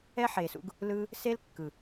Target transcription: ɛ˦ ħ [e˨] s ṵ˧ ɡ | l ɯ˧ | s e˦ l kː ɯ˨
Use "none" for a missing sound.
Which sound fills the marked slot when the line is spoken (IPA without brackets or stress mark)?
e˨